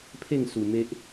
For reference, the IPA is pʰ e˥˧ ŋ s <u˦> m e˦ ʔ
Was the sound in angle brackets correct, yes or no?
no